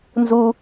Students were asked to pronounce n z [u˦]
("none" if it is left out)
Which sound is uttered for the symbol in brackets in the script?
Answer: u˦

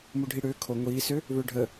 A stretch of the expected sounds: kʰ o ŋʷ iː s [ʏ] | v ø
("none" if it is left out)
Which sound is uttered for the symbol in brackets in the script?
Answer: ʏ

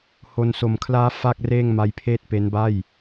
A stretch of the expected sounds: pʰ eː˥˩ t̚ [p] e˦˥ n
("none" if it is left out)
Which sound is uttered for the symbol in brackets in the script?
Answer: p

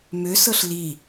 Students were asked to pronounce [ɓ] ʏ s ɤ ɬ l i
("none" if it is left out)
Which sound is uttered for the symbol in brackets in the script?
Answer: m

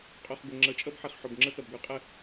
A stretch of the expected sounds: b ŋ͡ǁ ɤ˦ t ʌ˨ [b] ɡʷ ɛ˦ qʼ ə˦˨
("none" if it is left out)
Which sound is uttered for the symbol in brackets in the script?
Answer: b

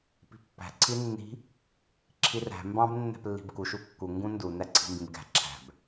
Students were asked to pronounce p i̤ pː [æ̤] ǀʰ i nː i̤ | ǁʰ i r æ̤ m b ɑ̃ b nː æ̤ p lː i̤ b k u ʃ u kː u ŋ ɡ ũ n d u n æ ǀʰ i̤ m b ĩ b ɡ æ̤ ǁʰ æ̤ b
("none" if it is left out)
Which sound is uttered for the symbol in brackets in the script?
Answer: æ̤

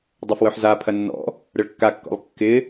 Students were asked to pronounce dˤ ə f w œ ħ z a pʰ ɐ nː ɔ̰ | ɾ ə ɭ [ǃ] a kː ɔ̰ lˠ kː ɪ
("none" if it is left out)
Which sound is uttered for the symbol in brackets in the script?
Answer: kː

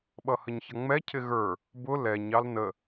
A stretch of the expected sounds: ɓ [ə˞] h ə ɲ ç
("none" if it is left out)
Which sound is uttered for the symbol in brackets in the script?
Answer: ʌ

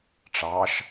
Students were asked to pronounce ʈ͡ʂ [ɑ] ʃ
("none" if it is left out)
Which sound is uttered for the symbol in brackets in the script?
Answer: ɑ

